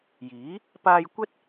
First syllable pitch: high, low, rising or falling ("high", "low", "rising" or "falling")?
rising